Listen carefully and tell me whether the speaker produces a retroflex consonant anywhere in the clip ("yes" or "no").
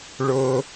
yes